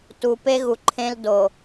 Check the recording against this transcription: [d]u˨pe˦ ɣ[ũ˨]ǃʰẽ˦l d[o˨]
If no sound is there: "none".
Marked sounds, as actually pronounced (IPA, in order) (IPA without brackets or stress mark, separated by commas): t, u˨, o˨